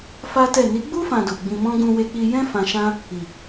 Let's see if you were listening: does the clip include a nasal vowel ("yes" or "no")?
yes